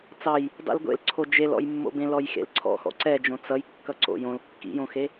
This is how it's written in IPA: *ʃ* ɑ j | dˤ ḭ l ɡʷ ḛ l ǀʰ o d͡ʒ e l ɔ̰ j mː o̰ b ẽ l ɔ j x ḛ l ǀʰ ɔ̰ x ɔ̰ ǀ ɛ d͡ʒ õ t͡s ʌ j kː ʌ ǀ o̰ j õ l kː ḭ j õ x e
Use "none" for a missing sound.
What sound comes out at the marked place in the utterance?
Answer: t͡s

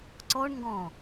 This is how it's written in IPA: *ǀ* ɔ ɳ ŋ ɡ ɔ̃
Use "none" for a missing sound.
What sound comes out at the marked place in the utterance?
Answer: ǀ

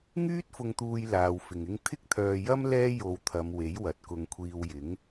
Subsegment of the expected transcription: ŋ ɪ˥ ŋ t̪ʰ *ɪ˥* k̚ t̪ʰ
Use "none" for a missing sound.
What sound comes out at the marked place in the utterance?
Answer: ɪ˥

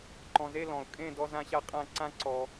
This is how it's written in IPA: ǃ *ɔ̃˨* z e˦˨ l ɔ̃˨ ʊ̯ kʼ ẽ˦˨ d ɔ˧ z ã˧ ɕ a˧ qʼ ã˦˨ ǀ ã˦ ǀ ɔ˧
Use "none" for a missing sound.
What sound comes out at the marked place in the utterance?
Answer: ɔ̃˨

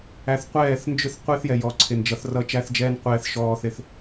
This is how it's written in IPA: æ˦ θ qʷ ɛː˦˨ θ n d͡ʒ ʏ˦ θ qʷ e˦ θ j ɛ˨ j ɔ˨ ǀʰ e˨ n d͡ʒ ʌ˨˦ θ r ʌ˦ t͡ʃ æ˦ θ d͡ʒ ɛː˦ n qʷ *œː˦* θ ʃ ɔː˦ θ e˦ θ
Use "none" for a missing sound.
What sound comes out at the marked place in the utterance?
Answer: ɛː˦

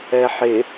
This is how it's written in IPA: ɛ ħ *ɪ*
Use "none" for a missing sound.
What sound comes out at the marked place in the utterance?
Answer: ɪ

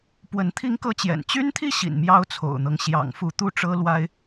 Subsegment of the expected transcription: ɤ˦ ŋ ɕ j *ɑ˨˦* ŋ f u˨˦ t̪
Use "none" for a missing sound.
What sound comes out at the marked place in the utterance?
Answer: ɑ̰˨˩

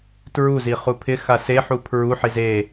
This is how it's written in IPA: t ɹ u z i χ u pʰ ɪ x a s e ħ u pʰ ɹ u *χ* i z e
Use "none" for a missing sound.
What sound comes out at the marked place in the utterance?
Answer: ħ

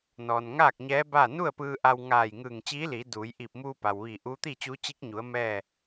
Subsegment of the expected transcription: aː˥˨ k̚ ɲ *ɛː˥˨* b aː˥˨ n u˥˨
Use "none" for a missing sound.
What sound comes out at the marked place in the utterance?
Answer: ɛː˧˥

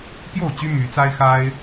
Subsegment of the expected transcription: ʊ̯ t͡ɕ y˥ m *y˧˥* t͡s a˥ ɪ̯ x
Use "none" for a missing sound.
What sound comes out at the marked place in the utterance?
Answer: y˧˥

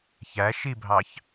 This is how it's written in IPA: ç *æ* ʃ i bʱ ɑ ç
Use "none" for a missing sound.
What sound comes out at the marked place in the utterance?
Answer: æ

